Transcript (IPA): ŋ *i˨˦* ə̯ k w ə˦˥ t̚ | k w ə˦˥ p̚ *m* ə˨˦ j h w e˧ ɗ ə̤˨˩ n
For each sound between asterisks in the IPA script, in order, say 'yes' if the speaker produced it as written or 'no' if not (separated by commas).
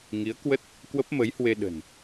yes, yes